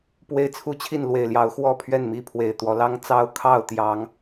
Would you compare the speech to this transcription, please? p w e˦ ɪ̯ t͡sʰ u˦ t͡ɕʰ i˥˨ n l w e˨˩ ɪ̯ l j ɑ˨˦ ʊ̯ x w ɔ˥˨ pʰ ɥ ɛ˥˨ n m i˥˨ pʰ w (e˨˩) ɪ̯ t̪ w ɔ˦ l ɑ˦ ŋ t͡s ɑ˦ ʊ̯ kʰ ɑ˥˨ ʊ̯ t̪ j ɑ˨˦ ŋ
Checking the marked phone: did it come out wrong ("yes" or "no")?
no